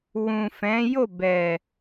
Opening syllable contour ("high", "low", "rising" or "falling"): low